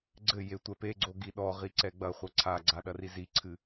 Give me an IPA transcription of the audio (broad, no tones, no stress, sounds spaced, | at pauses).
ɡ͡ǀ ɘ j e tʷ ɛ p e ɡ͡ǀ o ɡ i ɗ ɔ ʁ i ǀ ɛ ɡ͡b ɐ χʷ ɐ ǀʰ a ɡ͡ǀ a ɗ ɐ r i z i ǀʰ ɨ